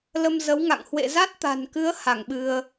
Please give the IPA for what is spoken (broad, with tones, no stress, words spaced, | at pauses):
lə˧m zə˨˦wŋa̰˧˨ŋ hwḛ˧˨ za˦˥t̚t̪a̤˨˩nkɨ˨˦ə̯ ha˧˩ŋɓɨ˧ə̯